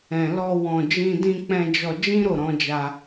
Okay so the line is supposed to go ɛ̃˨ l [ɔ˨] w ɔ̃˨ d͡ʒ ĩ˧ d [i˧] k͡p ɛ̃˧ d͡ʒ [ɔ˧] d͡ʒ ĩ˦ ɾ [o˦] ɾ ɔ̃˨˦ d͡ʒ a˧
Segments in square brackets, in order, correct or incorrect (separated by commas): incorrect, incorrect, correct, incorrect